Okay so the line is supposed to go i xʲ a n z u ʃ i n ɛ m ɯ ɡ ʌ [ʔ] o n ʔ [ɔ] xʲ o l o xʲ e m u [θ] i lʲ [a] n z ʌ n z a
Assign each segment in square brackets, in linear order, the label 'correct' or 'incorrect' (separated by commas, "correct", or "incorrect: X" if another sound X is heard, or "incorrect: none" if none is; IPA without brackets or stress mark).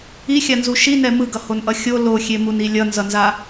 incorrect: h, incorrect: ʌ, incorrect: n, incorrect: ʌ